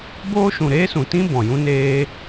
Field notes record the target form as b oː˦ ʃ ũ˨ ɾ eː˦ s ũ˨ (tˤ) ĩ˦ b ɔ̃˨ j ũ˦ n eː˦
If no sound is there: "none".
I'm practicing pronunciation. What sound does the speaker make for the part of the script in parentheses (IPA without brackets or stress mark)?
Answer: t